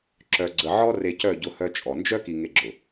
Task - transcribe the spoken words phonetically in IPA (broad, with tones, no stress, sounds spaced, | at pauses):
ǁ œ˨ ɡ͡ǀ ə˨ ʕ ɔ˦ r e˨ c œ˦˨ ɟ ʊ˦ h œ˦ t͡ʃʼ ɔ˨ n d͡ʒ œ˦ k i˨ ŋ e˦ ɡ͡ǁ ʊ˨